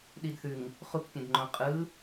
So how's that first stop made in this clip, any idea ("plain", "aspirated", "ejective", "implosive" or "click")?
implosive